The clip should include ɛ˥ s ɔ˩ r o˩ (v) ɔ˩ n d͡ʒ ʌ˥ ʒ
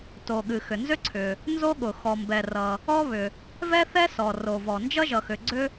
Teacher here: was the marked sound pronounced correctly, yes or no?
yes